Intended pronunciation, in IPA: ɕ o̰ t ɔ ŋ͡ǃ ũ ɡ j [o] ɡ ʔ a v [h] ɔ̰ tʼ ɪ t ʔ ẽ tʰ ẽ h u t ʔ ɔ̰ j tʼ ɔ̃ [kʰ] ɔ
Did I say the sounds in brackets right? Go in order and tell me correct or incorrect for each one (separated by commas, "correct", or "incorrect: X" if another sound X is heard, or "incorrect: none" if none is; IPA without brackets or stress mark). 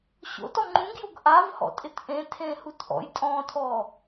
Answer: correct, correct, incorrect: tʰ